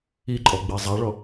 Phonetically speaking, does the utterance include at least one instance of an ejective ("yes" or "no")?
yes